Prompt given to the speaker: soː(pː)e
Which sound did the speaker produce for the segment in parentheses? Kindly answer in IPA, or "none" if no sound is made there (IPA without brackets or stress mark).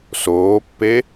pː